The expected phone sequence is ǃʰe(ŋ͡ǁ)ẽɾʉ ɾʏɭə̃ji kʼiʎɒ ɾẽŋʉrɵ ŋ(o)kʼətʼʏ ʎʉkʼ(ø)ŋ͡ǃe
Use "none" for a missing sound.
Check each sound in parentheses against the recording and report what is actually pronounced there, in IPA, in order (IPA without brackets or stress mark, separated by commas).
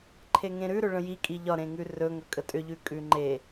ŋ, ɵ, ʉ